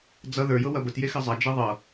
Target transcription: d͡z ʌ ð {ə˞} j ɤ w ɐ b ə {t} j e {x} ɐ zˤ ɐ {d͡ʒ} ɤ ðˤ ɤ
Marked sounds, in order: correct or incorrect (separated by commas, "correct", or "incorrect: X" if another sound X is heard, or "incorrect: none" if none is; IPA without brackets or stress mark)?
correct, correct, correct, correct